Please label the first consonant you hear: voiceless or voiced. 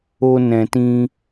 voiced